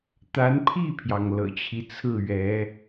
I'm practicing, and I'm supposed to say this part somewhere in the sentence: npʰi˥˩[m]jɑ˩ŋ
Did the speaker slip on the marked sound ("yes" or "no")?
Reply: yes